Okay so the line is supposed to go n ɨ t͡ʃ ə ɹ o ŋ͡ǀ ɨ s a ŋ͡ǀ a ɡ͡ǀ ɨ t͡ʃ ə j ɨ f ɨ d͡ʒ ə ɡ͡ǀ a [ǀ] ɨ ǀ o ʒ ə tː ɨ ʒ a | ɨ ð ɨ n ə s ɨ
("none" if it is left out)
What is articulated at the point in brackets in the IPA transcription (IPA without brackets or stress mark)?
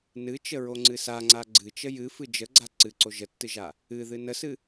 ǀ